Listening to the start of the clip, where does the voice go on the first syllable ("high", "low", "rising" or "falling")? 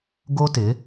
high